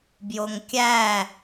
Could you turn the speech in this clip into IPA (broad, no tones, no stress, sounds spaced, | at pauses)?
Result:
b j o ŋ kʲ æ